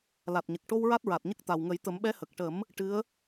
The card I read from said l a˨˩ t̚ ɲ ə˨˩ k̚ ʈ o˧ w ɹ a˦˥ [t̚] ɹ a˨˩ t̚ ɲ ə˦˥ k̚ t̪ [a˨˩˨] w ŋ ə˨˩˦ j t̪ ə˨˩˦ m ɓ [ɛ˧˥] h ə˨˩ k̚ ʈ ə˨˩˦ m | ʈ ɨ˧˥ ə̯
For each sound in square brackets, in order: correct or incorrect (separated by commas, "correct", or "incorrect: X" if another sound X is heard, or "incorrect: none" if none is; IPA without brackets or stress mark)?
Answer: correct, incorrect: a˨˩, correct